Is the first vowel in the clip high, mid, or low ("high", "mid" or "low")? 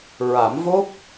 low